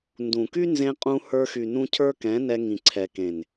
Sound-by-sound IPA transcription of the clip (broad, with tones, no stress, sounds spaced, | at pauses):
n d ũ˨ k y˦ n z ẽ˧ qʼ ũ˧ h ə˞˧ x y˨ n ũ˧ cʰ ə˞˦ k ɛ̃˨˦ n ɛ˧ ŋ ĩ˨ ǀʰ ɛ˨ k ẽ˨ n